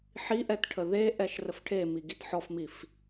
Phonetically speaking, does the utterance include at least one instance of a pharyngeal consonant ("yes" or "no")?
yes